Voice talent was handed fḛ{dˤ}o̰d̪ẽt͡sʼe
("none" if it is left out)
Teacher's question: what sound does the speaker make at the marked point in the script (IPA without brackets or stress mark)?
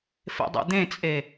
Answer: dˤ